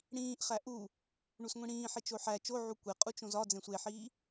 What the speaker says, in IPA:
ɽ ĩː ʔ χ æ ʔ u | ɳ u s ŋʷ ĩ ɽ ĩː ħ i t͡ʃ o ħ æ t͡ʃ o ʕ u kʷ e qʼ u t͡ʃ õ z ɒ d͡z ẽ sʷ e ħ iː

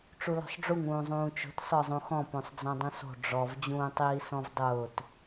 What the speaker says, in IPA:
ʈ͡ʂ u l ɔ̤ sˤ ɖ͡ʐ u ŋ ũː zˤ ũː t͡ʃ o̤ t s ɔ zˤ ũ x ɔ̃ p õ sˤ d͡z ɔ̃ dˤ ũ s o̤ ɖ͡ʐ ɔ v d͡ʑ ũː tˤ iː s ɔ̃ v dˤ ʊː t

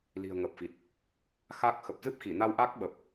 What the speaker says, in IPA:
l i̤˨˩ ə̯ ŋ ə˨˩ p̚ f i˨˩ t̚ | x a˦˥ k̚ x ə˨˩ p̚ z ɨ˦˥ p̚ x i˧˩ n a˧ w ʔ a˦˥ k̚ ɓ ə˨˩ p̚

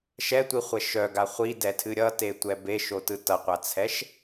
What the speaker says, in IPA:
ʃ ɛ tʷ i χʷ ɛ ʃ œ ɡ a χʷ i d ɛ tʰ ɨ ɾʲ ʌ t e tʷ ɛ b e ʃ o t ɯ t ʌ qʷ a t͡sʰ ɛ ʃ

